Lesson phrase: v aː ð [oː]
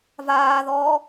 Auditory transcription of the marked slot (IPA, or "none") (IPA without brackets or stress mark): ɔː